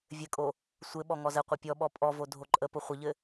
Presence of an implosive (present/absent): present